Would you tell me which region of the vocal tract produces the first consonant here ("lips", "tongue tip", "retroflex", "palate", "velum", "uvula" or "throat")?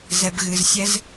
tongue tip